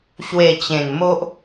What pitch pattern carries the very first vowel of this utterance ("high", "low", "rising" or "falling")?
low